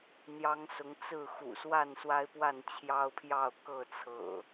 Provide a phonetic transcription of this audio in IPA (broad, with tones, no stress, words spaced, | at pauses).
n̪jɑ˨˦ŋ sʊ˨˦ŋt͡sɹ̩˥˨ xṵ˨˩swa˥˨nswa˦ɪ̯pwa˥˨n t͡ɕʰjɑ˦ʊ̯pʰjɑ˥˨ʊ̯ kɤ˥˨t͡sʰɤ̰˨˩